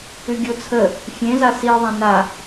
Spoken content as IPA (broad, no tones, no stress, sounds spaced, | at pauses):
ʉ ɡʲ o t͡sʰ ə | fʲ ẽ z a s i ðˤ ã n a